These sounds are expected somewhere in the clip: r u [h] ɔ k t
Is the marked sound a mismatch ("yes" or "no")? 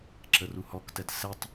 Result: no